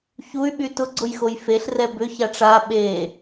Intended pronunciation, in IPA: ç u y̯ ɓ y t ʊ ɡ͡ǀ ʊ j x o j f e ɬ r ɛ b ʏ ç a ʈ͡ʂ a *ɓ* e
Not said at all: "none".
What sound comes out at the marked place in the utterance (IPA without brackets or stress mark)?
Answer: ɓ